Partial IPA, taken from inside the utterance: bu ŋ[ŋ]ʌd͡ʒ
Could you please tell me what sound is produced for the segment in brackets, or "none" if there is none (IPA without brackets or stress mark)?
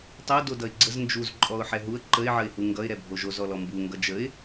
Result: ɡ